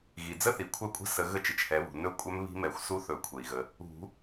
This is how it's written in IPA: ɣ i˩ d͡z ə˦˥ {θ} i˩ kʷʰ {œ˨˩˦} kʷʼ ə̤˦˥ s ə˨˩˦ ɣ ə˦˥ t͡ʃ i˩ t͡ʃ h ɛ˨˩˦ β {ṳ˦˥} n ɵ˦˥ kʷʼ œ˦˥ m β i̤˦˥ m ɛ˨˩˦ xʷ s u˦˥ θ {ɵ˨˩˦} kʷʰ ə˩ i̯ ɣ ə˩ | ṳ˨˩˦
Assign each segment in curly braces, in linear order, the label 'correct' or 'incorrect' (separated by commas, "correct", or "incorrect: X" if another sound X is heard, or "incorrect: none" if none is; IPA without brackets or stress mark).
correct, incorrect: œ˦˥, incorrect: ṳ˩, correct